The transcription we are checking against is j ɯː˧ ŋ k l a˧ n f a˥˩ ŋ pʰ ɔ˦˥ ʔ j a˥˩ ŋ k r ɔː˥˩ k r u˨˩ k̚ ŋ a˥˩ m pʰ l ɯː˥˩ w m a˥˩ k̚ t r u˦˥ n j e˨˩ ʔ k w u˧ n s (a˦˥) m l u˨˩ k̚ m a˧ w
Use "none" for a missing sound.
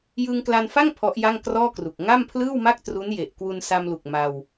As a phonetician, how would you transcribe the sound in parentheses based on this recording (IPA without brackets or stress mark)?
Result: a˧